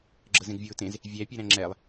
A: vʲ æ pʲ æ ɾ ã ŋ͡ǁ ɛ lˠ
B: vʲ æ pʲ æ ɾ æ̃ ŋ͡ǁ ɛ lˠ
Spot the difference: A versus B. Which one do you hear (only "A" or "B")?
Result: B